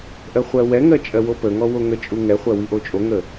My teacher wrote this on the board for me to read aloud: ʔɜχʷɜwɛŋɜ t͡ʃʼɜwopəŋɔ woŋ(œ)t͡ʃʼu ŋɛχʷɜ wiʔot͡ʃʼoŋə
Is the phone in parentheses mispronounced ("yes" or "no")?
yes